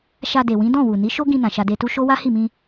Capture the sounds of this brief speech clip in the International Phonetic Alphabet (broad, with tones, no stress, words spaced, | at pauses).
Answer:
ʃa˧de˨wĩ˨˦ dɔ̃˦˨wu˨ni˨˦ ʃo˦ɡĩ˧nã˨ ʃa˧de˧tu˦ ʃo˦ wa˦hi˦˨mĩ˧